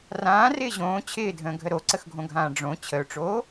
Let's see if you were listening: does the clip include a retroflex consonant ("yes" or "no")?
yes